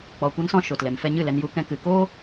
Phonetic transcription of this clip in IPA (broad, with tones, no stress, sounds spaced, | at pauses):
k͡p ɔ˧ kʷ a˦ n s ɔ̃˦ ʃ o˨ t l ɛ˨ m f ɛ˧ ɲ ɨ˦˨ l ɛ˧ n j u˧ k ɛ̃˦ k ɨ˧ k oː˦